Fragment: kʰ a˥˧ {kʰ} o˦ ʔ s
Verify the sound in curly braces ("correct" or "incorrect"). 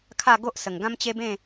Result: incorrect